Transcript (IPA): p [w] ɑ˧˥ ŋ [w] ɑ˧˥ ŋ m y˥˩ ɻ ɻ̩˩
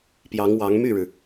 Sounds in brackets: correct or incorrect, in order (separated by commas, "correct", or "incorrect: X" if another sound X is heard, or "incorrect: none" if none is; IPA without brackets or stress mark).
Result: incorrect: j, correct